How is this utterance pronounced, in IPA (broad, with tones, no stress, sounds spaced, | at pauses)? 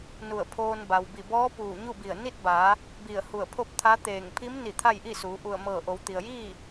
n u˧˩ ə̯ pʰ oː˧ n b a˩ w b i˧˩ b ɔː˧˥ p uː˧˩ ɲ u˥˨ b i˧˩ ə̯ n i˥˨ t̚ b aː˩˧ | b i˧˩ ə̯ h u˧˩ ə̯ pʰ o˥˨ p̚ t̪ʰ a˧˥ t̪ eː˧˩ ŋ pʰ i˧˥ m n i˧˩ t̪ʰ a˥˨ j ʔ i˥˨ s uː˩˧ ʔ u˧˩ ə̯ m ɤː˧˩ ʔ o˩˧ w t̪ i˩ ə̯ j iː˥˨